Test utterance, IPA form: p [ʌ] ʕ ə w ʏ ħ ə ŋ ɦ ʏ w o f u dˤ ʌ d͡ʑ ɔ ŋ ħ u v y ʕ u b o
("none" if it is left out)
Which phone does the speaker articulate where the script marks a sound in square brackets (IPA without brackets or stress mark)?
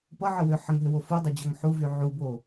ʌ